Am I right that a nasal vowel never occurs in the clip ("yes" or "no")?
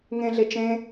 no